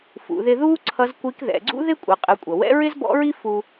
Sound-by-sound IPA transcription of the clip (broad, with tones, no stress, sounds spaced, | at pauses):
f ṵ˩˧ ð ɪ˧ ð uː˥ ǀʰ ʌ˧˥ z kʷ i˧˥ k ð ɛ̰˩˧ ɡ͡ǀ ṵ˥ ð ɪ˥ kʷʼ ə˩˧ qʼ ə˩˧ kʷʼ ʌ˩ w ɛ̰˧˥ ɹ ɪ˥ z b ɔ̰˧˥ ɹ i˥ f u˧